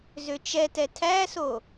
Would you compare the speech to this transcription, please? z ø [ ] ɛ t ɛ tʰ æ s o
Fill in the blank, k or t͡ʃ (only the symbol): t͡ʃ